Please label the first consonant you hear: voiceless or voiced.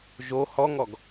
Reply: voiced